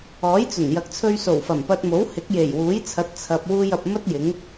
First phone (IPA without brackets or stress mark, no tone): ɔː